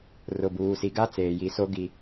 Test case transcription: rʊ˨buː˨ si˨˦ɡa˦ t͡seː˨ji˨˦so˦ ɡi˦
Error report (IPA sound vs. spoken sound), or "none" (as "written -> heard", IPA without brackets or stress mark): none